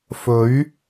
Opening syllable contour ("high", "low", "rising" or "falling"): rising